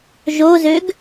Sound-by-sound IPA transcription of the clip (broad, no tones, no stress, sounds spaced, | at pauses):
ʒ o z ø ɡ